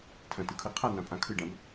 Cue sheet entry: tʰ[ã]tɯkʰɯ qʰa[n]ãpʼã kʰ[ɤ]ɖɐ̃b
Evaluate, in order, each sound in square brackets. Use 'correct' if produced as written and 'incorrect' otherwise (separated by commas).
incorrect, correct, incorrect